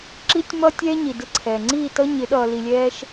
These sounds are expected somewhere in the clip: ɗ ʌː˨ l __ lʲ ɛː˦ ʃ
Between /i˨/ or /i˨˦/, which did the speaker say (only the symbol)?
i˨